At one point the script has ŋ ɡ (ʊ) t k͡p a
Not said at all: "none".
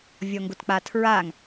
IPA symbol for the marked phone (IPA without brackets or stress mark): ʊ